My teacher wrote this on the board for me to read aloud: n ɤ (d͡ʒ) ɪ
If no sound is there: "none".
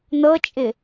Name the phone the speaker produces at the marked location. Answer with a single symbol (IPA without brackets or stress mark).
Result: t͡ʃʼ